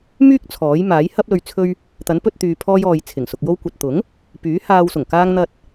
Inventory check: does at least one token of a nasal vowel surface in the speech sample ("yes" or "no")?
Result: no